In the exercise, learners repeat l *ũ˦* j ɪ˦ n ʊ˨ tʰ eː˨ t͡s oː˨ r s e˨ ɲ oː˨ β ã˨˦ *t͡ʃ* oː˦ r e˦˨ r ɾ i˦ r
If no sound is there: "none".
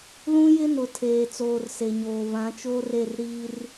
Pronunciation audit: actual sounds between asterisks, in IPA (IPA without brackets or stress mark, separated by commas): ũ˦, t͡ʃ